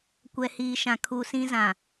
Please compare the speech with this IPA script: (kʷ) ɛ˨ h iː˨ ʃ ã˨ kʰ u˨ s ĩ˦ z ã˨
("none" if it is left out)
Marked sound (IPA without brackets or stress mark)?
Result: kʷ